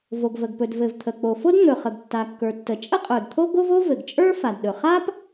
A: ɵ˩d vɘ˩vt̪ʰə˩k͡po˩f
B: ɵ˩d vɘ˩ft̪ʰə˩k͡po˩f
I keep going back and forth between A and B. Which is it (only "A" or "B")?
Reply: A